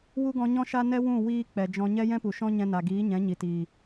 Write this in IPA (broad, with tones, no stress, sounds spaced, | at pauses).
w u˦ ɡ ɔ̃˧ ɲ ɔ̃˦ ʃ a˦ n ɛ˦ w ũ˦˨ w iː˧ k͡p ɛ˨ d͡ʒ ɔ̃˧ ɲ ɛ˦ j ɛ̃˦ p u˨ ʃ ɔ̃˦ ɲ ɛ̃˧ n a˨ ɡ iː˨˦ ɲ ɛ̃˨˦ ɲ i˨ t iː˨